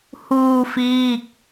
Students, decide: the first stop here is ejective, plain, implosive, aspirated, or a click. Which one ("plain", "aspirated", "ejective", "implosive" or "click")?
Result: plain